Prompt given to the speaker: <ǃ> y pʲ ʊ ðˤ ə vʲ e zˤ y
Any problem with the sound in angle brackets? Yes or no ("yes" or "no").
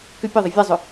yes